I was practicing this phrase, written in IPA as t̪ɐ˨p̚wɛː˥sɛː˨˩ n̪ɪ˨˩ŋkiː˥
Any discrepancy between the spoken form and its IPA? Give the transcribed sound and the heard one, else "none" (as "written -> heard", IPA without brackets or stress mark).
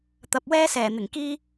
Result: none